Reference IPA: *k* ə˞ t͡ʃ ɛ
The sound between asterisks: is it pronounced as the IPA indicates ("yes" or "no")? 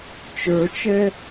no